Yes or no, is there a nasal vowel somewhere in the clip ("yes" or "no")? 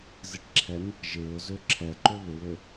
no